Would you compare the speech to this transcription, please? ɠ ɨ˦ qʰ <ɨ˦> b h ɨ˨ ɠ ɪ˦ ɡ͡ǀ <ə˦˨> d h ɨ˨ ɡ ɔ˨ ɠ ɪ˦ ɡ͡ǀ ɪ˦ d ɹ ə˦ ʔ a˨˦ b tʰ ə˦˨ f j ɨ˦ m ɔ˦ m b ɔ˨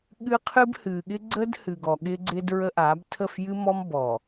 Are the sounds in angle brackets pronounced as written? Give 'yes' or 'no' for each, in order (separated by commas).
yes, no